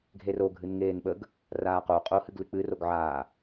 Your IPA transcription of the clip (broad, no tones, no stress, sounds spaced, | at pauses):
ɡʱ e r o ɡʱ ɨ n ŋ eː n ɓ ə ɡ | r aː q o qʼ o h ɨ ɡ l ɨ k͡p ɨ r o ɡ ʕ aː